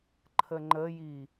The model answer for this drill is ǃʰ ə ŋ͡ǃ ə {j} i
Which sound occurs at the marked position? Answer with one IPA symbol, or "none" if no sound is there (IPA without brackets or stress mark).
j